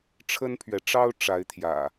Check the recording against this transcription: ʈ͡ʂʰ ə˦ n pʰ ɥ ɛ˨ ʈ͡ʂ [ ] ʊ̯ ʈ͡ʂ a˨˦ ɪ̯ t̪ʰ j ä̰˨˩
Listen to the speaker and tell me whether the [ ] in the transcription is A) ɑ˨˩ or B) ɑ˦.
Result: B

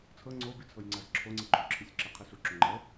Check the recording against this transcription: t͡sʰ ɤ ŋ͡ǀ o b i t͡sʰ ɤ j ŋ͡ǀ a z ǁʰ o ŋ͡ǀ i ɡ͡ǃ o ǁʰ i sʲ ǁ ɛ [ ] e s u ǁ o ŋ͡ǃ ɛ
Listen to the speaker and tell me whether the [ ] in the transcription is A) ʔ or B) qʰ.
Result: B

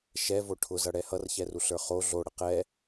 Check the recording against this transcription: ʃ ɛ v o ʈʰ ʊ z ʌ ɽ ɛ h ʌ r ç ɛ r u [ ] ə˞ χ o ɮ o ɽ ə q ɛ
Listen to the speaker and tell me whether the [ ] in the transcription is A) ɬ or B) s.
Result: A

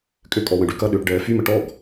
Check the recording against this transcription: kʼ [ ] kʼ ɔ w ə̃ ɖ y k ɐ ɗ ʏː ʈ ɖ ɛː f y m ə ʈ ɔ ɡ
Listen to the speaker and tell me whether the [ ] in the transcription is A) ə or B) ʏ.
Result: B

